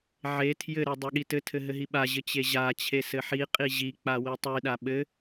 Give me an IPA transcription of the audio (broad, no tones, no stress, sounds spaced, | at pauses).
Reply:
ʕ e tʰ j ɘ ɾ e dˤ e ɠ i t ɘ tʰ ɘ ɦ ɘ ɦ i ɓ a ʑ ɘ t͡ɕ e ʑ a t͡ɕʰ e s ɘ ħ i qʼ i ʑ i k͡p a w i tˤ i ɗ a ɓ ɘ